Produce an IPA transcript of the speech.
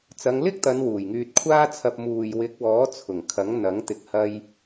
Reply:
t͡s ɐ˨˧ ŋ l ɪ˥ k̚ t̪ ɐ˨˧ n w uː˨˩ j ŋ yː˧ t̚ kʷʰ aː˥ t͡sʰ ɐ˧ p̚ m uː˨ j w ɪ˨˥ k̚ w ɔː˨˥ t͡sʰ ʊ˨˩ ŋ kʰ ɐ˨˥ ŋ n̪ ɐ˨˥ ŋ t̪ ɪ˨˥ k̚ h ɐ˧ j

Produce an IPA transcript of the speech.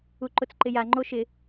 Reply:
u ǃ ʊ t͡s ǃ ɪ j a ŋ͡ǃ o ʃ ɪ

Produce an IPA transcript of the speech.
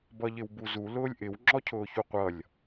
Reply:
b ʌ ʎ ɪ w b u z u l ʊː lʲ ʔ ɪ w ŋ͡ǁ ɔ cʰ ʊː ç u qʷ ʌ lʲ

